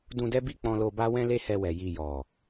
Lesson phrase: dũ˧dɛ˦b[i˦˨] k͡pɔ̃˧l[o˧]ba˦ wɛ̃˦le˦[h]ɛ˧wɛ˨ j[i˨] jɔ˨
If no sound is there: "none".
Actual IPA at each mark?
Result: i˦˨, o˧, h, i˨

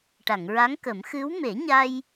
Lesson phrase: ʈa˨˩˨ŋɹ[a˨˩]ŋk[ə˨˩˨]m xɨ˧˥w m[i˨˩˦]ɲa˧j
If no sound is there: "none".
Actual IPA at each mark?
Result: a˧˥, ə˨˩˦, e˨˩˦

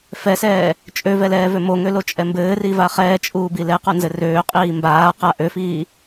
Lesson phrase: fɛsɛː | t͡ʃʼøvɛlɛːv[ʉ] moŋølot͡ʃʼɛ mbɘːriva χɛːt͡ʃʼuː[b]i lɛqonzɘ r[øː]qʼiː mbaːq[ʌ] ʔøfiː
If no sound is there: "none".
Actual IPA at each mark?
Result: ø, b, øː, a

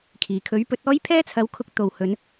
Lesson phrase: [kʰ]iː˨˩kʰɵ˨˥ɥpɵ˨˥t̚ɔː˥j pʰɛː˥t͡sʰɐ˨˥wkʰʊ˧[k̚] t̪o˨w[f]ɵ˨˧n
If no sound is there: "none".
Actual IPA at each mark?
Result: kʰ, k̚, h

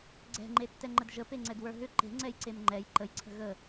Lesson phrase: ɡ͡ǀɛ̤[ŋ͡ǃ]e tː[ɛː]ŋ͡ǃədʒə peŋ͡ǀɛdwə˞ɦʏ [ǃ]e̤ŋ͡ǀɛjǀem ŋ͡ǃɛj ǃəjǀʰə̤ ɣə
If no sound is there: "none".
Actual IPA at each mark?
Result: ŋ͡ǃ, ɛ, ǃ

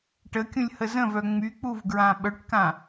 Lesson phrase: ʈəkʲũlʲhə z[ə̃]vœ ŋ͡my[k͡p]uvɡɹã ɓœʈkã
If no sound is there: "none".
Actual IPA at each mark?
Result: ə̃, k͡p

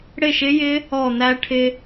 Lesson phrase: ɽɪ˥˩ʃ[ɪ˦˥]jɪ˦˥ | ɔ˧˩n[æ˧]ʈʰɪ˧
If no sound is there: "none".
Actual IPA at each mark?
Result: ɪ˦˥, æ˧

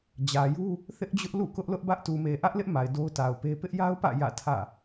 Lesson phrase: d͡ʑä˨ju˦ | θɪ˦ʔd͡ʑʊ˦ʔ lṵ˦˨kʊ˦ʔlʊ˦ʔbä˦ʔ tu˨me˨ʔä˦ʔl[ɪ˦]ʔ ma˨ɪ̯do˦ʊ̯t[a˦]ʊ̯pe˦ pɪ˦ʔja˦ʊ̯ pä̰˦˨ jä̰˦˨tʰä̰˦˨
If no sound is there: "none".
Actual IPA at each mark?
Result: ɪ˦, a˨

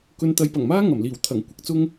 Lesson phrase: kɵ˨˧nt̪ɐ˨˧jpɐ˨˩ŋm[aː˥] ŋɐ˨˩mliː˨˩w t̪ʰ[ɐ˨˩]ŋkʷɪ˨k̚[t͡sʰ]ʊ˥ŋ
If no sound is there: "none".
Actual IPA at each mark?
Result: aː˥, ɐ˨˩, t͡s

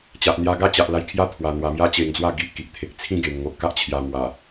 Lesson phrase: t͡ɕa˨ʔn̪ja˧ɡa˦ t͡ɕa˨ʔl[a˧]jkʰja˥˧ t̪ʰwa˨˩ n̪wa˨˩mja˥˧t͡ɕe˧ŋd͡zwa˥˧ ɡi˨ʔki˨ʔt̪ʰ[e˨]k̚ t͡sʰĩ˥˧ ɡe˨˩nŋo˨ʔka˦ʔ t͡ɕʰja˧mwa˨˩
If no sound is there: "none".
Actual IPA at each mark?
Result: a˧, e˨

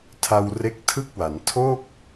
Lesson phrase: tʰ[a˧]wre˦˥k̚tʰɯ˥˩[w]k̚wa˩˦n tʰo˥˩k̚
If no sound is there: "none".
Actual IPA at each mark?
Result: a˧, none

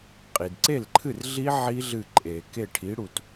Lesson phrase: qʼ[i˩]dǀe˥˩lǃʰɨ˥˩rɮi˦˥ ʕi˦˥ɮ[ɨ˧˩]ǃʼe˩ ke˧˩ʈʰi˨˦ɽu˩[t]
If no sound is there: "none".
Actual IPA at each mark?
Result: i˩, ɨ˧˩, t

